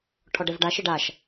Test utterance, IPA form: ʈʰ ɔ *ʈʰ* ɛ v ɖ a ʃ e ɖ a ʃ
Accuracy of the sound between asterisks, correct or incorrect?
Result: incorrect